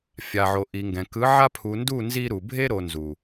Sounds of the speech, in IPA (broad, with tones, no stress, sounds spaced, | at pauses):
fʲ a˨ ʕ o˨ ʔ i˨ ŋ ɡ ɛ̃˨ k ɯ˨˦ ʕ a˦ pʰ u˨ n d u˦˨ n z i˦ ɾ u˨ bʱ e˦ ɾ o˨ n z u˨